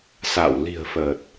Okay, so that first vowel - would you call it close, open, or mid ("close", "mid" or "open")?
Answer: open